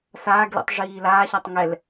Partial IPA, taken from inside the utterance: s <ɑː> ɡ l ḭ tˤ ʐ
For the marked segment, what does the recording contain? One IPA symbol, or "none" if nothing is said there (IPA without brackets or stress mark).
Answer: aː